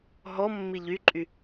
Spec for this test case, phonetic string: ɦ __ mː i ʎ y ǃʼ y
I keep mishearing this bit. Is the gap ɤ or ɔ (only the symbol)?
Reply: ɔ